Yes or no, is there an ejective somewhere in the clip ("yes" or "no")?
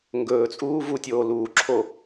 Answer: yes